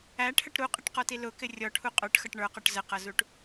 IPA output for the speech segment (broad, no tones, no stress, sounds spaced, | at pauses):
æ ʈʰ ə ʈ ɾ u qʼ ɪ ʈ q ɔ t i l ʊ k ɪ rʲ ɔ ʈʰ u qʼ ə˞ ʈ x ʌ ʈ ɳ ə˞ q ɔ ʈ z ə q ʌ z u ʈ